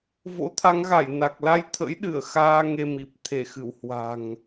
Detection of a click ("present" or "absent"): absent